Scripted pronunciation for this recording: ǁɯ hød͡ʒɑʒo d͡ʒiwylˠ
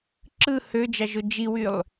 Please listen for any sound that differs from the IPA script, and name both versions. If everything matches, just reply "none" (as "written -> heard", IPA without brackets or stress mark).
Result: none